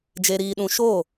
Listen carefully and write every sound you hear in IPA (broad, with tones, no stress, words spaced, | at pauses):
d͡ʒe˧ɾiː˧ɗũ˧ ʃo˦˨